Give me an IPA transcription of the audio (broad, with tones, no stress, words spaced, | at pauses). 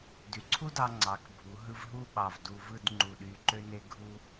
dy˩˧ǀʰu˥dɑ˧ ŋ͡ǀɑ˩˧kbʱu˩˧ɦɯ˧v ɦu˥˧ɓɑ˧˩vdu˧ vɯ˥˧d ŋ͡ǃu˧˩ɗy˧ǃø˥ ne˥ ɡʱu˥